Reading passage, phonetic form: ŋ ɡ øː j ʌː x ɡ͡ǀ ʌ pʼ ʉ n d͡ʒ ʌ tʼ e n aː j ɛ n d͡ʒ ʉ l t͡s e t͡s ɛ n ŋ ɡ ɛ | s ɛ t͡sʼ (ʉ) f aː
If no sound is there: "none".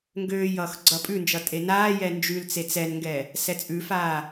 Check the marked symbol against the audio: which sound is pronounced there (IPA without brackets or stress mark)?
ʉ